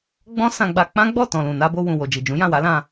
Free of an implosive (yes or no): yes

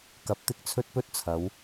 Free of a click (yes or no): yes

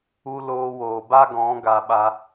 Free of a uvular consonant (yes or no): yes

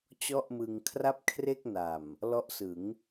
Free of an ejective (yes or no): yes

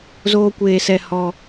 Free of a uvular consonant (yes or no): yes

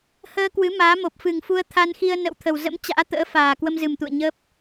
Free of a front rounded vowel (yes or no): yes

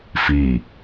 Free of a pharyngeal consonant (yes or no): yes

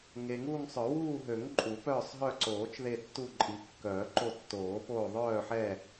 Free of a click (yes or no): no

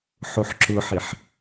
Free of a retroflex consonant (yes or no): yes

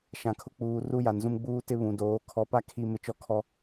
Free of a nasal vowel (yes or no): no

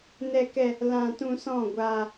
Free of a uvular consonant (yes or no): yes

